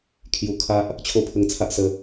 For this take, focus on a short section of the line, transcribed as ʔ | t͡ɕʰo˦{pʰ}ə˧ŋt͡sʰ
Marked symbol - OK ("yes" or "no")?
yes